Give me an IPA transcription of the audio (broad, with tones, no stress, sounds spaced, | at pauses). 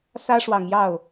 s ä˥ ʂ w ɑ˨˩ ŋ j ɑ˥˩ ʊ̯